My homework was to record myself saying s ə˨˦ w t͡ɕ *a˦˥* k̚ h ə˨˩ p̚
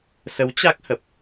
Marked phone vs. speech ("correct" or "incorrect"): correct